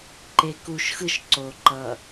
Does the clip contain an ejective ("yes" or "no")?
no